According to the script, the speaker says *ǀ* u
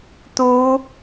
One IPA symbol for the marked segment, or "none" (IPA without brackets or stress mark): t̪